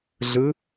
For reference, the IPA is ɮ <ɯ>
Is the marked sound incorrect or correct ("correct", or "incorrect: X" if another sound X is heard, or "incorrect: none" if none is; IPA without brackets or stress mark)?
correct